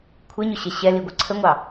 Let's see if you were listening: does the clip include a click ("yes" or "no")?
yes